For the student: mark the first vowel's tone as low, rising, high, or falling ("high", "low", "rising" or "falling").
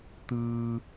low